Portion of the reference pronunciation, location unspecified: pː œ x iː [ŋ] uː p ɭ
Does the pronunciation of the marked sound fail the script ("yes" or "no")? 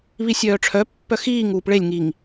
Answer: no